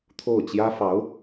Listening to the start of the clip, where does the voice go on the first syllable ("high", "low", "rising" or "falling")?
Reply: falling